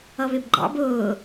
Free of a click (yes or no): no